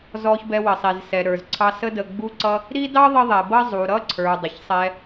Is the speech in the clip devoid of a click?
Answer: no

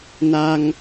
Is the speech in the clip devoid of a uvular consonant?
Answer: yes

